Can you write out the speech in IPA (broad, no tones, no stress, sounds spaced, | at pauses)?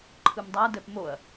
ǃʰ ɯ m dˤ a d ɛ p m o ɐ̯